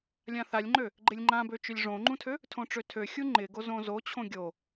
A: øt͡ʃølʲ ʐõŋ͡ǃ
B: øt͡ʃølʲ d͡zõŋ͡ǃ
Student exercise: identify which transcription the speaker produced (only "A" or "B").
A